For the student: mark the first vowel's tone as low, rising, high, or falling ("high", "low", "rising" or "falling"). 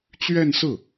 falling